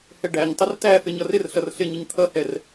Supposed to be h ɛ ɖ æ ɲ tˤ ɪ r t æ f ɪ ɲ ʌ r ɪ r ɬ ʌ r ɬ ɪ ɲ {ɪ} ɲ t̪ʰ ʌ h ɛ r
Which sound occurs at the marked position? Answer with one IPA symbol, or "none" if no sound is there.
ɪ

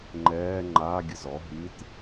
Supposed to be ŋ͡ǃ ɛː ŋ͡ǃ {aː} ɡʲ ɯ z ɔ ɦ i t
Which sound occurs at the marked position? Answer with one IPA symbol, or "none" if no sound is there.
aː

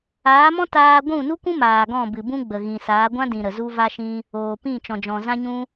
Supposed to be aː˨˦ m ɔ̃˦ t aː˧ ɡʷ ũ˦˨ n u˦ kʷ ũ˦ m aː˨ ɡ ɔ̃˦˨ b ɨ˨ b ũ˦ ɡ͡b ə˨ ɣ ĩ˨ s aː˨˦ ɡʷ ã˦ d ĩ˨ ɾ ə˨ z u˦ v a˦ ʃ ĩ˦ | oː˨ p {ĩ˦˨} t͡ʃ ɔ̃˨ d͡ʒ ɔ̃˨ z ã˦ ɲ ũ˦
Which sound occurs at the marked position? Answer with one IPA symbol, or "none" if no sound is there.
ĩ˦˨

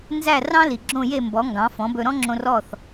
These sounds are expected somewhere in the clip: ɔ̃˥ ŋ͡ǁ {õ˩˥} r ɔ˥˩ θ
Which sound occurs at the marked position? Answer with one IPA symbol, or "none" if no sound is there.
õ˧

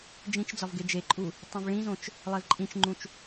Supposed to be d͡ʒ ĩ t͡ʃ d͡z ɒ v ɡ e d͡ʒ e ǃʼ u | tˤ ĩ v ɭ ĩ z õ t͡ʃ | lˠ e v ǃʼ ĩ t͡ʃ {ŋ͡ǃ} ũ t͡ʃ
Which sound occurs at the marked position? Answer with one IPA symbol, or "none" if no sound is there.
ŋ͡ǃ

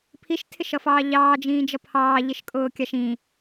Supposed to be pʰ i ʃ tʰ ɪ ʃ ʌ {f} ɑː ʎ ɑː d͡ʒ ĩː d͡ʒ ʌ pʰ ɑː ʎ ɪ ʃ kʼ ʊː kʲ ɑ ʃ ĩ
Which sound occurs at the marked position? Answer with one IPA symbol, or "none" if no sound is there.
f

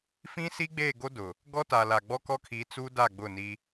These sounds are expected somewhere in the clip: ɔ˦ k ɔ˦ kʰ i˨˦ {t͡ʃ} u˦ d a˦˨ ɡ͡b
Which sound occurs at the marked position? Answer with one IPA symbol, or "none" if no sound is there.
t͡s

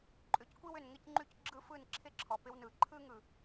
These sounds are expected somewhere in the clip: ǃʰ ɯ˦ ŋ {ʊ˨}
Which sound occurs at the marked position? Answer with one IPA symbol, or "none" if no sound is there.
ɯ˨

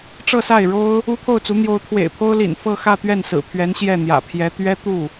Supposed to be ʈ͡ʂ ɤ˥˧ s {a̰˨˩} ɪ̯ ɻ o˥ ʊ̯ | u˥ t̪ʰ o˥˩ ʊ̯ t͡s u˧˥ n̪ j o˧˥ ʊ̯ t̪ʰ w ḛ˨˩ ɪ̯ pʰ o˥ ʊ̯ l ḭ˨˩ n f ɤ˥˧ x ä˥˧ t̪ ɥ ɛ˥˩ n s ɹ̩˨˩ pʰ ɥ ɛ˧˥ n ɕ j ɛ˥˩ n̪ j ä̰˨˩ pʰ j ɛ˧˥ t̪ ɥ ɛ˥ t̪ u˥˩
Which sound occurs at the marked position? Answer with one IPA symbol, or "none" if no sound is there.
a˥˩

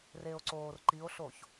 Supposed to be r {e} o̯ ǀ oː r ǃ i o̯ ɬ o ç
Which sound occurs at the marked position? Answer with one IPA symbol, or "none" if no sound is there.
e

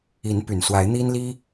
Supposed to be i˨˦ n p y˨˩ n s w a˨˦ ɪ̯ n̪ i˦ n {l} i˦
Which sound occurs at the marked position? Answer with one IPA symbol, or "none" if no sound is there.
l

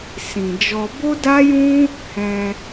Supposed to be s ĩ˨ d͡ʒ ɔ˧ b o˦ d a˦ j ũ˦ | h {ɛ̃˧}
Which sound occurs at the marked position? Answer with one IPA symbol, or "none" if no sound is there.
ɛ̃˧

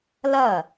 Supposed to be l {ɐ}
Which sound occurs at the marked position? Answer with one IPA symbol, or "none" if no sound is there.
ɐ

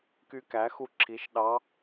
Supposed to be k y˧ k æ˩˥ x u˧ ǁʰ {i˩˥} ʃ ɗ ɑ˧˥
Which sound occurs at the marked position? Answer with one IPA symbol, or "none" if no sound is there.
i˩˥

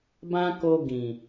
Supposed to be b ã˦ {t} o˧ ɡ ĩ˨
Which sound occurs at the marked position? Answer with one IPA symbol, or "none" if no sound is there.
k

